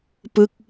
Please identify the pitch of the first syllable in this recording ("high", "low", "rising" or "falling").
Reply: falling